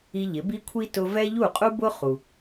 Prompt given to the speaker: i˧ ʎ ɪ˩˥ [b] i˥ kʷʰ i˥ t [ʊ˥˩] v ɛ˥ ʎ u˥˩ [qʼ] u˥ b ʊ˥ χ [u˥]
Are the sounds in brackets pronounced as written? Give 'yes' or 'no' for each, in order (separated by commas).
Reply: yes, no, yes, no